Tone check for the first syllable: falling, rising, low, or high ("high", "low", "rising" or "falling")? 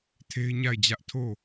high